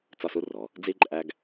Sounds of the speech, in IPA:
t͡s ɒ˥˧ s u˥ r ɔ˩˧ | d͡z i˥ ǃʼ æ˥ ɡ

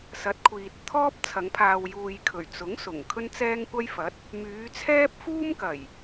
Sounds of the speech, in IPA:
s ɐ˨˥ t̚ kʷʰ iː˨ t̚ t̪ʰ ɔː˥ p̚ t͡sʰ ɐ˨˧ ŋ pʰ aː˨ w j uː˨ j kʰ ɵ˨˩ ɥ t͡s ʊ˨˥ ŋ s ʊ˨˩ ŋ kʰ ɵ˥ n t͡s ɛː˥ ŋ kʷ ɐ˥ j f ɐ˨˥ t̚ | m yː˨˧ t͡sʰ ɛː˥ p̚ f uː˥ m k ɐ˨˩ j

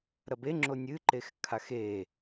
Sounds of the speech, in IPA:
ɾ ɐ b e ŋ͡ǁ o nʲ ɨ ǃ e x kʰ a x e

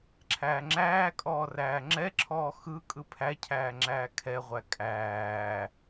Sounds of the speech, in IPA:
ǁʰ æː ŋ͡ǁ æː kʼ ɔː r æː ŋ͡ǁ ɛ ǁʰ ɔː x ɯ kʼ ɯ pʰ æ cʰ æː ŋ͡ǁ æː kʰ ɛ ʁʷ æ kʼ æː

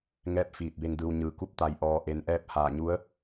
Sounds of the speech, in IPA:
ŋ ɛː˥˨ p̚ f iː˧˩ t̚ b e˧ ŋ d ɯː˧ w ɲ ɯː˧˩ k u˥˨ p̚ t̪ a˧˩ j ʔ ɔː˩ ʔ e˩ n ʔ ɛː˧ p̚ h aː˧˩ ɲ u˧˥ ə̯

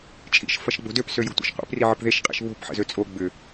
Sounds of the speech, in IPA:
t͡ʃʼ ḭ ʃ f ɐ ʃ ɡ͡b o̤ d ø p s ø j o̤ tʷ ḭ ʃ qʷ ḛ p r i ʕ ə p ð e ʃ qʼ ḭ ʃ β o̤ p ħ ə̰ z ø t͡sʼ o ɡ͡b ʏ

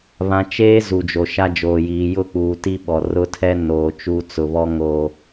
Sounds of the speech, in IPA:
β ã˨ t͡ʃ eː˦ z u˨ d͡ʒ o˨ ʃ a˦ d͡ʒ oː˨ j iː˨ j ʊ˦ k͡p uː˨ t i˦ ɓ ɔ˨ r ʊ˦ tʰ ɛ˦ n oː˨ t͡ʃ u˦ t͡s ʊ˨ β ɔ˦ ŋ o˨

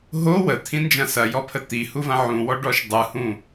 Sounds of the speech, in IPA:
ɦ o w ə t̪ʰ ĩ n d͡ʒ ɐ̃ s ɐ j ɔ pʰ ə t̪ i h u v ɐ̃ ʕ ũ w ɔ ɖ ɔ ʃ dˤ ɯ h ũ

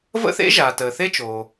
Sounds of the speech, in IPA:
v ə̰˥ θ ḛ˥ ʒ aː˩ t əː˩ θ e˥ t͡ʃ oː˩

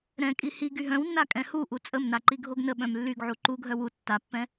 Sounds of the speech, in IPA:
ɾ ɛ̃ kʼ i h i ɡ y ɦ œ̃ w nː a kʼ ɛ̃ h u ʔ u t͡sʼ ə m n a ǃ i ɡʱ o ɡ n ə ɓ œ̃ m lː y ɡ ʕ u ǃ u ɡʱ œ w u tː a pː ɛ̃

